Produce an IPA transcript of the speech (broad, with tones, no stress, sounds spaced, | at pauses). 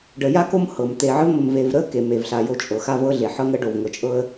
ɖ ə˨ j a˥ k o˦ m h ɤ˩ m t̪ e˨ ʕ ə˦ v m ə˨ m v e˨ v ɾ ə˥ k e˩ m e˩ v ɬ a˨ j o˦ t͡ʃʼ ɤ˩ x a˥ v ɤ˦ ɮ e˩ ħ ɤ˦ ŋ ə˦ ɖ o˩ v ŋ ɤ˨ t͡ʃʼ ɤ˦ ə̯